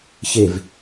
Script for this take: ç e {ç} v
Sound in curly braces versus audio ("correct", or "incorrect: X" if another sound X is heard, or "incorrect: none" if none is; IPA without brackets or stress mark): incorrect: none